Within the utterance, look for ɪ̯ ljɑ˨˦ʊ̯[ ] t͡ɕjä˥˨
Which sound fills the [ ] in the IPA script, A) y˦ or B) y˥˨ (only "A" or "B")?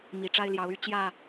B